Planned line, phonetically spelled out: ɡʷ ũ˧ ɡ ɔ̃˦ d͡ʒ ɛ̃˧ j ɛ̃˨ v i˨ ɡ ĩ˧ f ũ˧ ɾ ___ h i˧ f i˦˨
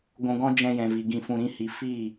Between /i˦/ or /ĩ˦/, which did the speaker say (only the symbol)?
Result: ĩ˦